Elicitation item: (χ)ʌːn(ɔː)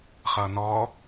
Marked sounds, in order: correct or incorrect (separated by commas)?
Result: correct, correct